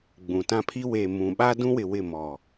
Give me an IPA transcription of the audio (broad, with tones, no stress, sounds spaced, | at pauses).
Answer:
ɡ͡b ũ˨ t ã˦ pʰ i˦ w e˨ m ũ˨ ɓ a˦ d ũ˦ w ɪ˨ w ɪ˦˨ m ɔ˨